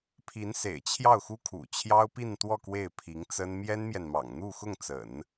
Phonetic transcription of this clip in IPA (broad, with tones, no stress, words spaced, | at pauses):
pʰi˧˥nsḛ˨˩ɪ̯ t͡ɕʰjɑ˥˩ʊ̯xu˥ kʰṵ˨˩t͡ɕʰjɑ˥ʊ̯pi˥˧nt̪wɔ˥˧ kwe˥˩ɪ̯pʰi˧˥ŋt͡sə˥n mjɛ˥nmjɛ˨nmɑ̰˨˩ŋ n̪u˥˧xʊ˥˩ŋt͡sə̰˨˩˦n